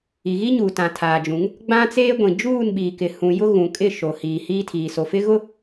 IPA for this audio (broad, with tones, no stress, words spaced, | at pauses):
i˨ɣi˦ɲuː˨ tã˨tʰaː˨d͡ʒũ˨˦ŋ | ɡ͡bã˦t͡seː˦ɡʷĩ˨ d͡ʒuː˦˨nɓiː˨kɪ˨ hũ˨ jʊ˦ ɣũ˨kʼɪ˦˨ʃo˨ hiː˨hiː˦tʰiː˨ so˨fɪ˦ ɣʊ˦